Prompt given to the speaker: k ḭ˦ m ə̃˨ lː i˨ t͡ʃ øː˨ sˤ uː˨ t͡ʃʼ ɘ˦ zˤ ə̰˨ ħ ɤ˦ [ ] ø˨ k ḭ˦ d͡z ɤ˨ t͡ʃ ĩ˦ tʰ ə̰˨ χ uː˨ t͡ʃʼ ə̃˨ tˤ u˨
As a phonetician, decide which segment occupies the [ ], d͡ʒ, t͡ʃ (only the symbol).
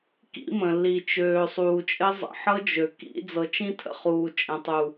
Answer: d͡ʒ